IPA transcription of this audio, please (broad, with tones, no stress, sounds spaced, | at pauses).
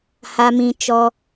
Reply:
h a˧ m ĩ˧ t͡ʃ ɔ˧